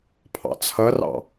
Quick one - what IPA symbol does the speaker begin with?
pʰ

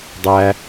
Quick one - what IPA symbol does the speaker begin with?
dˤ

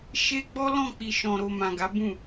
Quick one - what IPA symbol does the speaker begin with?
ʃ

